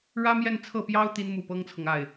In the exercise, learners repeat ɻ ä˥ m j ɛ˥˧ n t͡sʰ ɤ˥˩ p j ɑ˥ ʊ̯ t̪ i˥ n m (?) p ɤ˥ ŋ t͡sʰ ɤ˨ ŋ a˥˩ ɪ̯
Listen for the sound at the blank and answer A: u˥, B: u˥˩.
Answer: B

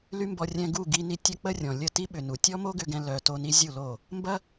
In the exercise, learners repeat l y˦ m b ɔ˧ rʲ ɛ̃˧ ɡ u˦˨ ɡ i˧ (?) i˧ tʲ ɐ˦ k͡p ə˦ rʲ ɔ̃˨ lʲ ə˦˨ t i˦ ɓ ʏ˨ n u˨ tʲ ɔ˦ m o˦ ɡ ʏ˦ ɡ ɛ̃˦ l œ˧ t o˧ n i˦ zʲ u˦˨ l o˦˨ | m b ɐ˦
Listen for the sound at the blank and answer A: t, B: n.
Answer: B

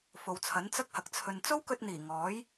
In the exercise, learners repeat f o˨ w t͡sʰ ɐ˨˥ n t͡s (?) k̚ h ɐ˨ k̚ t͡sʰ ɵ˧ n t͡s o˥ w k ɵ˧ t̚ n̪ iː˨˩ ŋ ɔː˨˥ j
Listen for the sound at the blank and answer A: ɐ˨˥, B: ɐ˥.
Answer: B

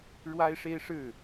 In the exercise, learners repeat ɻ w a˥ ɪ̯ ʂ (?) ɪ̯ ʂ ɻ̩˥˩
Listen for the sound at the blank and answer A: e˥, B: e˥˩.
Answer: A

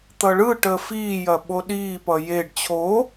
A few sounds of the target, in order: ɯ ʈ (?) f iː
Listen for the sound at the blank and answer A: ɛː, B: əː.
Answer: B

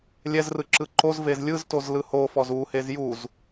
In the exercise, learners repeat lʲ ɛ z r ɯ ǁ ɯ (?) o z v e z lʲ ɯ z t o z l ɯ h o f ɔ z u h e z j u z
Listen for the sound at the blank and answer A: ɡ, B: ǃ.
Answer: B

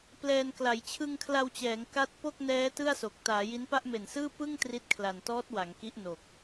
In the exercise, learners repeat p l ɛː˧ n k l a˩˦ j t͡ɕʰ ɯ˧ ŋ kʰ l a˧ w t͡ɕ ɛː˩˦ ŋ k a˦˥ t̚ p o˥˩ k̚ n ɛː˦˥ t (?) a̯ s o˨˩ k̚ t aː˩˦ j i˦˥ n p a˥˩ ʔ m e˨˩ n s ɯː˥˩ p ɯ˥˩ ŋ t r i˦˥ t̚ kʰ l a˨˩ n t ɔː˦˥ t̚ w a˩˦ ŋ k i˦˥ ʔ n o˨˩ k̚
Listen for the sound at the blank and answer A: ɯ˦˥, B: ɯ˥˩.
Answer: B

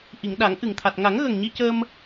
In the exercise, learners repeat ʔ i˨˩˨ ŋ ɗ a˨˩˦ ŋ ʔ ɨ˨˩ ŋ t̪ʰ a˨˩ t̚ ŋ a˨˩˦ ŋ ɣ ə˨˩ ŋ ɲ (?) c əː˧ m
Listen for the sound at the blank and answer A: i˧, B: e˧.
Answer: A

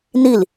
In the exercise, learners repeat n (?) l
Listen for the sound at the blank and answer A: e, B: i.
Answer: B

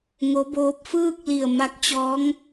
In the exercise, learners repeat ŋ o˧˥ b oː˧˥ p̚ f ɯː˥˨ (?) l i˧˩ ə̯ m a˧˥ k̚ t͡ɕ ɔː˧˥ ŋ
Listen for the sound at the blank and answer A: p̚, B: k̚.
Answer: B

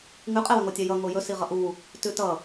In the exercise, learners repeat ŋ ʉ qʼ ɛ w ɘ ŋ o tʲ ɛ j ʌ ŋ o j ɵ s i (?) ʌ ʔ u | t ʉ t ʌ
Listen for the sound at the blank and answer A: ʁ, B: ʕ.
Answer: A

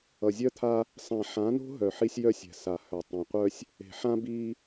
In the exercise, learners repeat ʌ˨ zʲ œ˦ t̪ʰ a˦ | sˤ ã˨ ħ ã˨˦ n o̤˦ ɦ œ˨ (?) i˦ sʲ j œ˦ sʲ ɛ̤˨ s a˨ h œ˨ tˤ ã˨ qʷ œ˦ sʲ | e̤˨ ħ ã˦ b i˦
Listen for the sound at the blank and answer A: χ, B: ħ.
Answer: B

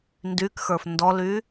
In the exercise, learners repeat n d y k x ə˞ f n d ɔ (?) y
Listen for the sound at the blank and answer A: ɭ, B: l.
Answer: B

